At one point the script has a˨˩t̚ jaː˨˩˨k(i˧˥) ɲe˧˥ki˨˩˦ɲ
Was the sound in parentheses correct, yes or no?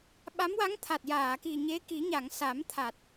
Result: no